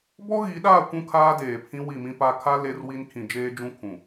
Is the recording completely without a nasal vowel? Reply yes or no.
no